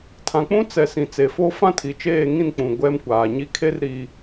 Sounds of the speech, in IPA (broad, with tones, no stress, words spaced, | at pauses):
tʰã˨k͡pũ˦t͡sɛ˨ sĩ˨t͡se˨fo˦ fã˦tʰi˨t͡ʃeː˦˨ ŋĩ˦˨nk͡pũ˨ ɡʷɛ˦mkʷaː˨ɲi˦ kʰe˦rɾi˨